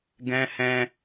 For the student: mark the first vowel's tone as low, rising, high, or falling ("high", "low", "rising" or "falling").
high